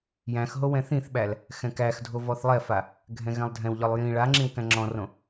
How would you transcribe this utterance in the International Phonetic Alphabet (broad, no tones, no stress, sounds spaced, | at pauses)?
j æ̃ x ɦ o w ɛ̃ θ ĩ θ ɓ æ l | x ɛ̃ k æ x dʱ o v ɔ θ lˠ ɛ f a | ɡʱ ɛ̃ ɣ ɛ̃ lˠ dʱ ɛ̃ w ʎ ɔ lˠ j ĩ ɭ a ŋ͡ǁ ĩ w k æ̃ ŋ͡ǁ ɔ̃ r õ